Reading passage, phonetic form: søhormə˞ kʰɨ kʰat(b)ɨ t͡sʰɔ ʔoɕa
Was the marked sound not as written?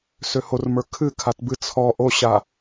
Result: no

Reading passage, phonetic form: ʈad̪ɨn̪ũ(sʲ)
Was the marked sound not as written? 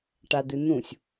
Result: no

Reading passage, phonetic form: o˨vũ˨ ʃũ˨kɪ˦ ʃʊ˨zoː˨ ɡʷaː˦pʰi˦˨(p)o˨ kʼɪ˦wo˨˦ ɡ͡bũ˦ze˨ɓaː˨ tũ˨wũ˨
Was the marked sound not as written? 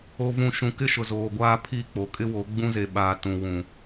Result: yes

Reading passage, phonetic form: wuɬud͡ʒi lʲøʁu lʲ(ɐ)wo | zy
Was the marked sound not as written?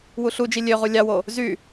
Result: yes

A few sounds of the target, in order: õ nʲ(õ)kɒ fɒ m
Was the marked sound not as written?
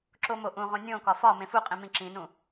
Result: no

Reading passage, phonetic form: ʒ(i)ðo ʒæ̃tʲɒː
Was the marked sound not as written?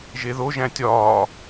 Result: yes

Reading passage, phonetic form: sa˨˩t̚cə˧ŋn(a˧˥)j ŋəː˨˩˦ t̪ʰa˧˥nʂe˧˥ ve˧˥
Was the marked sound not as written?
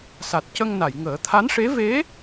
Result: yes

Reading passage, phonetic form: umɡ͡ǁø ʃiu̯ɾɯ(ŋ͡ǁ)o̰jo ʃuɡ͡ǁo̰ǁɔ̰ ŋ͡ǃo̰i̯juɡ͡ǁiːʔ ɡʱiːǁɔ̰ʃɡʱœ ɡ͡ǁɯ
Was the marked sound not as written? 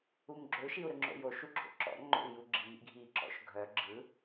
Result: no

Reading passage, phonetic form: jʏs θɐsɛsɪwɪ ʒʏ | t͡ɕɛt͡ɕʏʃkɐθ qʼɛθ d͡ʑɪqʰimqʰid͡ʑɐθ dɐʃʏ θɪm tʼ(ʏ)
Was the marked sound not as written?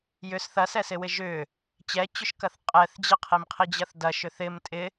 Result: yes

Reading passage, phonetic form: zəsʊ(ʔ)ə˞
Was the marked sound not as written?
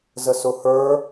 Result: yes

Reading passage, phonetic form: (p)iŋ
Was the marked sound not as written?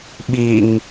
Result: yes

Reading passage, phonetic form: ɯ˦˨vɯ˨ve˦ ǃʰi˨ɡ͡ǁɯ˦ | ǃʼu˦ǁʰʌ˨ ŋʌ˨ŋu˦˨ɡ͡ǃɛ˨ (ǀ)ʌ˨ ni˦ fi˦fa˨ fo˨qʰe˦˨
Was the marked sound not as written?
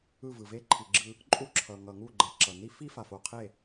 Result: yes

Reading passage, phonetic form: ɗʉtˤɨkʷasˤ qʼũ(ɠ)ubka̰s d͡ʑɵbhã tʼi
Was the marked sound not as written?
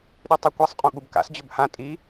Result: no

